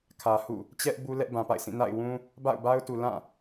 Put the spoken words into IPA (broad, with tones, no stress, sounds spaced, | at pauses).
kʰ ä˨ h ṵ˦˨ | t͡ɕ ɛ˦ ʔ b u˦ l ɛ˦ ʔ b ã˨ p a̰˦˨ ɪ̯ sʰ ĩ˦˨ n a̰˦˨ ɪ̯ w ũ˦ | b a̰˦˨ ʊ̯ b a˦ ʊ̯ t u˨ l ã˦˨